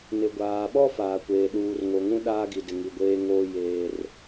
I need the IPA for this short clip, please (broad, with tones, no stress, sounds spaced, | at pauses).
n ɪ˨ ɡʷ aː˨ ɓ ɔ˦ f aː˨ kʷ eː˨ ɗ uː˨ r ŋ o˨ ŋ ũ˦ ɗ aː˦ ɡ i˨ d ɪ˨ ŋ i˨ ɡʷ eː˦ ŋ oː˦ j eː˦ r